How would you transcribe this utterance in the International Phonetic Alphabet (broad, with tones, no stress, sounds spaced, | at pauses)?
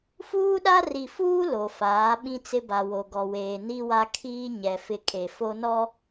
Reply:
f uː˦ ɗ a˦ r i˨ f uː˦ l o˨ f aː˨˦ ɓ ĩ˦ t͡s ɪ˦ b a˨ w o˨ ɡ ɔ˨ w eː˨ n i˦ w a˦ kʰ iː˦ ɲ ɛ˨ f ɪ˦ kʼ e˨ f o˦ n ɔ˦